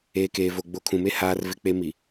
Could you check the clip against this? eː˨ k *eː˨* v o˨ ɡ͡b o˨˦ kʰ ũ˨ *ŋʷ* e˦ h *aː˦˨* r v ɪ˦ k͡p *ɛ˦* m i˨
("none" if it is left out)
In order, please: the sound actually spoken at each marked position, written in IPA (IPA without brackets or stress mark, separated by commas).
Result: eː˨, m, aː˦, e˦